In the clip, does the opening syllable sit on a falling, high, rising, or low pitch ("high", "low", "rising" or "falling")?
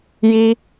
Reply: high